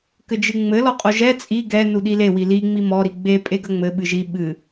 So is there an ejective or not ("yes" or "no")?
yes